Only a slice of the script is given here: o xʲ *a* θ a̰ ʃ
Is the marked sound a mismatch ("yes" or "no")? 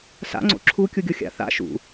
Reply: yes